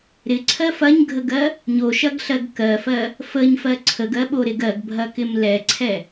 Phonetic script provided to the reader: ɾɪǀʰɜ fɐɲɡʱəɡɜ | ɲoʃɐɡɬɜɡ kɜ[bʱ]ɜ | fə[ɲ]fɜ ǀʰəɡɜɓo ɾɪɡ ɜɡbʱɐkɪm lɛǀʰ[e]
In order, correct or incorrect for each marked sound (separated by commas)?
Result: incorrect, correct, incorrect